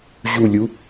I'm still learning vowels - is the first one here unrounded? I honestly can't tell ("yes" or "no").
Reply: no